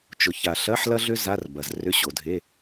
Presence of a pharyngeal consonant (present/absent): present